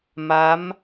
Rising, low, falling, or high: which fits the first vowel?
rising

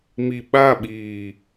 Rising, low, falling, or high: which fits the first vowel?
low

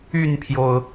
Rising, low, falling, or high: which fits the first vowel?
falling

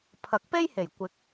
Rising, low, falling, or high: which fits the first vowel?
rising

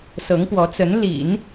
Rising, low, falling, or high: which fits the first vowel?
rising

